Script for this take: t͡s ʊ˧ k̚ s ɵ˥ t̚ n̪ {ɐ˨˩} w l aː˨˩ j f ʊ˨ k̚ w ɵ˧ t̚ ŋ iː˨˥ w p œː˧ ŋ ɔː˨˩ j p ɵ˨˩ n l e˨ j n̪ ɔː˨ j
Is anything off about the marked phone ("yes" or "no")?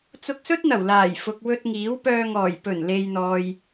no